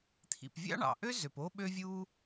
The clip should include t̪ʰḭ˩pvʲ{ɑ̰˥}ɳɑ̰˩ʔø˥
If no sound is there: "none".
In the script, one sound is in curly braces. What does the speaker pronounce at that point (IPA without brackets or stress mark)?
ɑ̰˥